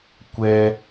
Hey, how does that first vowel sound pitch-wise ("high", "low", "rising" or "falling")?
high